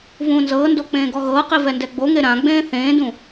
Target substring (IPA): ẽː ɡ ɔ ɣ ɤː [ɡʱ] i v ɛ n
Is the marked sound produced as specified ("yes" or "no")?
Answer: no